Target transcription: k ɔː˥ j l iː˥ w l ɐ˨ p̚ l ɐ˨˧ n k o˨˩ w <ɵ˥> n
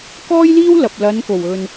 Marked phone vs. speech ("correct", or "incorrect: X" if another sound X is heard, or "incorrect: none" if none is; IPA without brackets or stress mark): incorrect: ɵ˨